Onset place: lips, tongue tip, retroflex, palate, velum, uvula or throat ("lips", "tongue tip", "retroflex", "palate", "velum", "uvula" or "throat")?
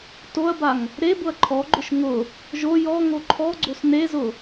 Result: tongue tip